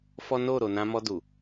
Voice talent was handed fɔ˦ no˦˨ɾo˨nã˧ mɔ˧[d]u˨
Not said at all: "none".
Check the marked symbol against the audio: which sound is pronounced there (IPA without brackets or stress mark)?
d